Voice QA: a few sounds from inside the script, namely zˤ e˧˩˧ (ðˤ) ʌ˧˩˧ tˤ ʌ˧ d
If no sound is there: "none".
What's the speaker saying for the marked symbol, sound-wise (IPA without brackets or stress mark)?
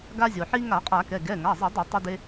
dˤ